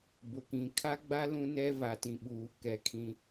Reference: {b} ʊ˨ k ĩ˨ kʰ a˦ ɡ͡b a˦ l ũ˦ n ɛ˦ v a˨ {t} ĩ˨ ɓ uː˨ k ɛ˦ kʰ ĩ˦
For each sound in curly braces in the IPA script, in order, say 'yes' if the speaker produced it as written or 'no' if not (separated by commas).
yes, yes